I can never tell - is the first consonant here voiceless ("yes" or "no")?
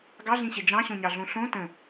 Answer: no